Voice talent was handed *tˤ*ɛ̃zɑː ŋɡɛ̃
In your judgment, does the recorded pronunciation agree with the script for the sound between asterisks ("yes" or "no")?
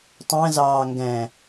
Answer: yes